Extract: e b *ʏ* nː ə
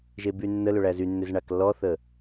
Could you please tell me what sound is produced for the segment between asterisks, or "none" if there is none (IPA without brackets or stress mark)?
y